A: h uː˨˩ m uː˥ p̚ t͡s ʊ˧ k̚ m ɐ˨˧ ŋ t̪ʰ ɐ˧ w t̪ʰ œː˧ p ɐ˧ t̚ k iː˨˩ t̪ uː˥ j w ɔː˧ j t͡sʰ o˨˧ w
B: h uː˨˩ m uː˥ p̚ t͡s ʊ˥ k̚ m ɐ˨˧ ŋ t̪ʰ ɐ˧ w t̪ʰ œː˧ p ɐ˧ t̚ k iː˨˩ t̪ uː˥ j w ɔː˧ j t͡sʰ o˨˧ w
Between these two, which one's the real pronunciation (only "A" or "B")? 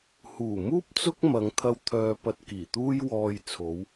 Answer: B